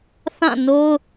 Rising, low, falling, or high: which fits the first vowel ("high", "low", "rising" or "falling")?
falling